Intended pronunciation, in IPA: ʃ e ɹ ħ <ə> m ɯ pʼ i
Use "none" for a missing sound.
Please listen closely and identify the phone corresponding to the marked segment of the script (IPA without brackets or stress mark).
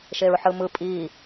ɯ